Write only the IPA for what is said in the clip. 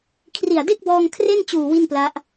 kʰ r i˨˩ a̯ d e˥˩ k̚ b ɔː˧ ŋ kʰ r e˥˩ n t͡ɕ uː˨˩ w i˥˩ n p l a˦˥ ʔ

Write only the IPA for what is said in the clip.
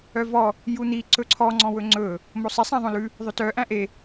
œ v ɔ | j u n̪ i ǀ ɵ ǀʰ ɔ ŋ͡ǀ ɔ̃ w ɵ ŋ͡ǀ ɵ | m o sˤ i sˤ æ̃ ðˤ õ l ʉ | ðˤ ɵ t œ ʔ æ̃ ʔ e

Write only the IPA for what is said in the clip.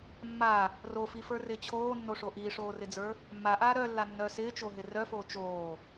mː a | r o f i f ə˞ r ɪː t͡ɕʰ oː nː o ʂ o ʔ iː ʂ oː r ɪ d͡z ə˞ | mː a ʔ aː ɾ œ lː a nː œ s ɪː t͡ʃ o ɦ ɪ r œ f oː t͡ʃ oː

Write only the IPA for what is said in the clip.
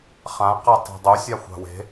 χ ã q a tˤ i̤ dˤ u sʲ a xʷ a̤ w e̤

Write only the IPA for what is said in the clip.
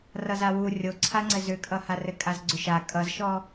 r ʌ z a w u rʲ o ǀʰ a ŋ͡ǀ ɘ z ʏ kʼ ʌ h a r ɘ kʼ a z ɡ͡ǀ ʏ ʃ a kʼ ʌ z ʃ ɔ

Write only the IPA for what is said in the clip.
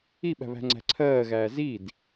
i ɓ æ̤ β æ̤ ŋ͡ǀ æ̤ ǀʰ ɜː ɣ æː z i d

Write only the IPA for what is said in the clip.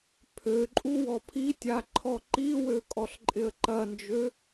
pʰ ø ǃʼ u w ɔ pʰ i tʲ a ǃʰ ɔ ǃ i w ø kʼ ɔ ɬ ǃʼ ɪ ə̯ ǃ ɐ n d͡ʒ ø

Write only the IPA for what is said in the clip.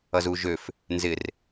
ʌ z u ʒ ø f | n z ɪ r

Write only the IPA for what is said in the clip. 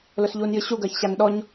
l ʊ s ʎ uː n j ɨ ɕ u ɡ ɜ ç ɕ a n ɗ ɔ ɲ

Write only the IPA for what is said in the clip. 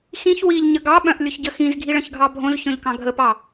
x ĩ ç w i ʎ ɲ ə ɡ ɑ ɓ œ̃ ʔ lʲ ʊ ç ɟ ə x ĩ z ɡʱ i ɭ ə̃ ç ɡʱ ɑ bʱ õ z ç œ̃ ʎ k ɑ̃ ɡʱ ə p ɑ

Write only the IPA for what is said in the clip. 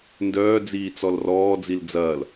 n d œː d͡z iː t͡s ɔ l r ɔː d͡z i l d͡z ɐː l

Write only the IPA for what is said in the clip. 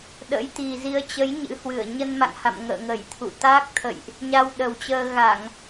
ɗ ə̰˧˥ j t̪ i˨˩ z i˨˦ ə̯ t͡ɕ ə˨˦ j ɲ ɨ̰˧˥ h w ɨ˧˩ ə̯ ɲ ə˧ n m a̰˧˨ ŋ h a̰˧˨ m ŋ ə̰ː˧˨ ŋ ə˧˩ j t̪ʰ ṵ˧˨ t̪ aː˦˥ k̚ t̪ʰ ə̰˧˨ j ʔ | ɲ a˧ w ɗ ə˨˩ w t͡ɕ əː˧ ɣ a˧˩˨ ŋ

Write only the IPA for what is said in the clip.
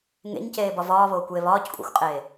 ŋ ḛ ɲ c eː b ɒ v ɒː β oː kʷ j e β ɒː c kʷʼ æ̰ xʷ qʼ eː

